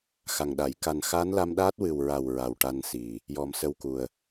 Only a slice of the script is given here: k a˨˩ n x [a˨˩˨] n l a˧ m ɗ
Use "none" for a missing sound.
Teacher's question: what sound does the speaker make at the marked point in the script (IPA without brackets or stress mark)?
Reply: a˧˥